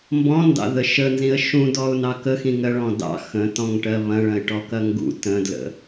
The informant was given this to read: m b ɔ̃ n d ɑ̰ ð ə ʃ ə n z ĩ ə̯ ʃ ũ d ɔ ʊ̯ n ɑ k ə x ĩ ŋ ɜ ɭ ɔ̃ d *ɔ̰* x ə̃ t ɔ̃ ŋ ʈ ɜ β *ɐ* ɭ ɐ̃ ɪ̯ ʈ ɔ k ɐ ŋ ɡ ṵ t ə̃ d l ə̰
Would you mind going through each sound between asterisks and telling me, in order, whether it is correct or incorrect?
incorrect, incorrect

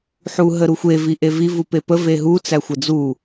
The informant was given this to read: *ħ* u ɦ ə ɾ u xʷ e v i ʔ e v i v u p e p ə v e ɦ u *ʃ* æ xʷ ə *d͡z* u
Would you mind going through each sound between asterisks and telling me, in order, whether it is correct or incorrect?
correct, incorrect, correct

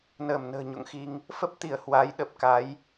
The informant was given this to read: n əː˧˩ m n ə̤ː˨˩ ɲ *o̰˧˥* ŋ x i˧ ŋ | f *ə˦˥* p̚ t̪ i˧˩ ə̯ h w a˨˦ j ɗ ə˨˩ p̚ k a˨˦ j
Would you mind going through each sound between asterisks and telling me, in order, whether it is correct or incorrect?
incorrect, correct

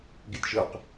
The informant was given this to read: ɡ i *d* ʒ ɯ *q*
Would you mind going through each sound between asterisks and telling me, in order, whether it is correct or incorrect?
incorrect, correct

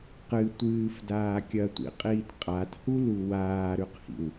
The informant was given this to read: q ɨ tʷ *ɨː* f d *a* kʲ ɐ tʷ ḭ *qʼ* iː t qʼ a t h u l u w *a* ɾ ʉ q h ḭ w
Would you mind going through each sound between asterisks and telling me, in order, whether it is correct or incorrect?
correct, incorrect, correct, incorrect

